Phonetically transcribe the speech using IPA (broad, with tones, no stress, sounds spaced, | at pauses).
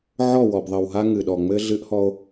ʕ ɔ˦˨ w ɔ˨ b ðˤ ɘ˨ w ɦ a˦ ŋ ɨ˨ ɗ ɔ˨ ŋ͡m ɘ˦ ɮ ɨ˦ ʔ h ɔ˦ o̯